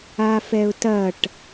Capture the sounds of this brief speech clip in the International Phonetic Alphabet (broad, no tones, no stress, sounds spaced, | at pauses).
a f ɛ ʊ̯ t ɐ ʈ